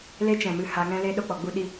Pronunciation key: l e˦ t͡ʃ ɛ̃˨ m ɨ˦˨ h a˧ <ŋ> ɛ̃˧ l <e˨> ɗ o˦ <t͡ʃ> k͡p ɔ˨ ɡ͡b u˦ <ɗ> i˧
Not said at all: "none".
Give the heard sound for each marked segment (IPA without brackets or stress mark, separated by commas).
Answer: ŋ, e˧, none, ɗ